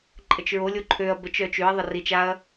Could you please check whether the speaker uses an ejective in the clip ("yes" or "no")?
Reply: yes